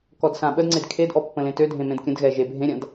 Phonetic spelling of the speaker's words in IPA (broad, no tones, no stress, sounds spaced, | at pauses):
k ɔ d s ã ɓ ə d ŋ͡ǀ e d kʰ e d ʔ ɔ pː ə̃ l ẽ t ø dʱ ẽ m ẽ d kʲ ə̃ d ɣ ɛ ʒ e bʱ ẽ ɾʲ ã d